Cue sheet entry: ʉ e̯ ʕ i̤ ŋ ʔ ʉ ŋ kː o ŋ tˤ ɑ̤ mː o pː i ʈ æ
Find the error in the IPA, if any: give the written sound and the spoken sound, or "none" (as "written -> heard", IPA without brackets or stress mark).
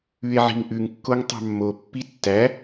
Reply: ʈ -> tː